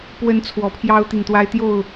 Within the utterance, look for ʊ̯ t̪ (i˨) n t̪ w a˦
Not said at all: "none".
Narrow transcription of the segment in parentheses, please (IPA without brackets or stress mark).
i˨